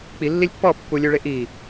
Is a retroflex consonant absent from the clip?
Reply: no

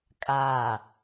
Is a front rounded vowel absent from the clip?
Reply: yes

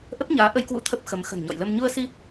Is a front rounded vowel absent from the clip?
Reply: yes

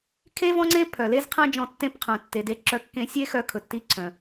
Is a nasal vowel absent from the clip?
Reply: no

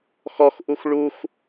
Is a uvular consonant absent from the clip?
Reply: yes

